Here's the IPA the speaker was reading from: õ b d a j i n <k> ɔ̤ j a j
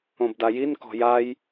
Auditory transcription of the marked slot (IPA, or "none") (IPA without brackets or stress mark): k